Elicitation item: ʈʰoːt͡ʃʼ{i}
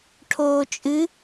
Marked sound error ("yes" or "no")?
yes